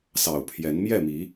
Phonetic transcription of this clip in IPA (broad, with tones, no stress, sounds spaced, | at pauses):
s ɑ˨˩ ʊ̯ pʰ j ɛ˨˦ n m j ɛ˥˨ m i˨˦